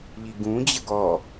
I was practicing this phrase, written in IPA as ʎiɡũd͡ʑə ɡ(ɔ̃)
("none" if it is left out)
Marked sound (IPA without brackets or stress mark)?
ɔ